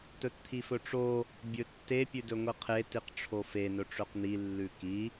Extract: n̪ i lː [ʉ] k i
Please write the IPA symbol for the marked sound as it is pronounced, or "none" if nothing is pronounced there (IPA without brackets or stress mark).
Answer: ʉ